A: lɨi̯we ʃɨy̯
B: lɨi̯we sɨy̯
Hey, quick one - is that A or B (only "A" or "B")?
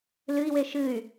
A